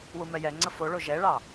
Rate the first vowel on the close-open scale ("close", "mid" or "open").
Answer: close